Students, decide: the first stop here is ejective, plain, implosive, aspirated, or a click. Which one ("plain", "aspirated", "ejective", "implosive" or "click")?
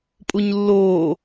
ejective